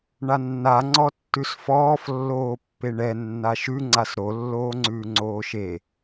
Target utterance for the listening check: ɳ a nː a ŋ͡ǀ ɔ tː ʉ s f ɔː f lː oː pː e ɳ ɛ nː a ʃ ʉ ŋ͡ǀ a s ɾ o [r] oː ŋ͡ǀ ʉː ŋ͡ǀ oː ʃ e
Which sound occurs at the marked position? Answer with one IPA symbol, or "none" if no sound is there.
lː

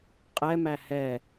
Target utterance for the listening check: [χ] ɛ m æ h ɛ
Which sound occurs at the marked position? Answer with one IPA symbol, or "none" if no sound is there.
qʼ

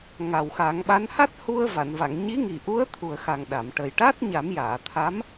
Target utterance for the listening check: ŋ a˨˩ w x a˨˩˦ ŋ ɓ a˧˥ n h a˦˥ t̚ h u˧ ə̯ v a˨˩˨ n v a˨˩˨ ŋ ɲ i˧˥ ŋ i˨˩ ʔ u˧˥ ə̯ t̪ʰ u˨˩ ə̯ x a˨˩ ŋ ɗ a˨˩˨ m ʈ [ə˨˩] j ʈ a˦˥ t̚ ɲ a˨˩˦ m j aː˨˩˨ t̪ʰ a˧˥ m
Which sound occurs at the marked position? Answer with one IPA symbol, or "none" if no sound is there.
ə˨˩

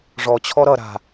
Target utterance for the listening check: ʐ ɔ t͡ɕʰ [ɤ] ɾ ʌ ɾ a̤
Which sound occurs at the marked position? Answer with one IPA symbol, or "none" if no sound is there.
ɔ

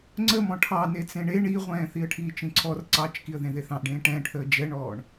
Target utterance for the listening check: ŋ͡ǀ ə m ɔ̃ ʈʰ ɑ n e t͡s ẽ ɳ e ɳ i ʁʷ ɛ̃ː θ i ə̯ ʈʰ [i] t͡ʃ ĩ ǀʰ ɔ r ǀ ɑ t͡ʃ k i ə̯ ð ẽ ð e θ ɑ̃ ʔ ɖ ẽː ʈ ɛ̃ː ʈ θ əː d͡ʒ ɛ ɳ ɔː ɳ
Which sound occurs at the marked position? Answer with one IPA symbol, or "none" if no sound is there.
iː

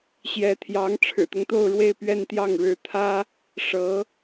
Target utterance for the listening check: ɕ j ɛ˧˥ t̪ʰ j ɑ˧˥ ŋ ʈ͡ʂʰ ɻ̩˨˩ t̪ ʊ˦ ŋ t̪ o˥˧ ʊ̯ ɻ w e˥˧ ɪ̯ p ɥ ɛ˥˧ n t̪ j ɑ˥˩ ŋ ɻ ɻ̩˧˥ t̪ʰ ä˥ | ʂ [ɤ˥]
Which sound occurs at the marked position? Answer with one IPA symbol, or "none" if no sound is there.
ɤ˧˥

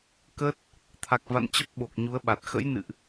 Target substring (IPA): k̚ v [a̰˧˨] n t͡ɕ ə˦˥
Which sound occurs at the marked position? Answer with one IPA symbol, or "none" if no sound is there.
a̰˧˨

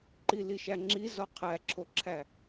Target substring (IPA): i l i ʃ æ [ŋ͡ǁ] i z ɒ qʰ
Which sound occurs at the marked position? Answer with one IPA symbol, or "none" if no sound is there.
ŋ͡ǁ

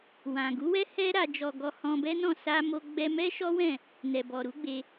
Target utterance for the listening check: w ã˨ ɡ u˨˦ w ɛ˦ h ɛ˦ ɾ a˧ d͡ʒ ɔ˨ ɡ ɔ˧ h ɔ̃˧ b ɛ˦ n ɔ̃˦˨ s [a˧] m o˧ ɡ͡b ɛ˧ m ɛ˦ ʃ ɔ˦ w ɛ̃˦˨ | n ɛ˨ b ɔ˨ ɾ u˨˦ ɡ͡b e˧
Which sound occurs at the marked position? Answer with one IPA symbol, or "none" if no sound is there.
a˧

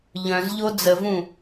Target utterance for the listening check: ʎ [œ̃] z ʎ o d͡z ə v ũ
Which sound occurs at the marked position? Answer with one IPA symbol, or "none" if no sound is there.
œ̃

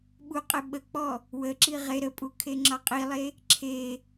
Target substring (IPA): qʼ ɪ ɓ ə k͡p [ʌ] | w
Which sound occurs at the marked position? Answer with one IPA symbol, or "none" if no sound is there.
ɔ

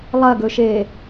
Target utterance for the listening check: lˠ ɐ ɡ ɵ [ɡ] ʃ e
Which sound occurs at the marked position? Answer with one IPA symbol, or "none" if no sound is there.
none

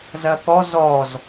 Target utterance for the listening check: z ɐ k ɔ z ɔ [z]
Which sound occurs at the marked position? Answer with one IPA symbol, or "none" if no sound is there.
z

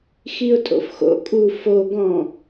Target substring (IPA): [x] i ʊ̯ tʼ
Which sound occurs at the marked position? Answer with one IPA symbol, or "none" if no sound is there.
x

